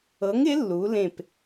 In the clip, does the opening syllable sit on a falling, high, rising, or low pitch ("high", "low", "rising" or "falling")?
rising